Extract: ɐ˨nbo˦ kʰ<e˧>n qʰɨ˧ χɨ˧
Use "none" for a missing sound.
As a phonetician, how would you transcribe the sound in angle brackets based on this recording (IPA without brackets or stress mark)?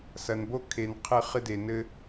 e˨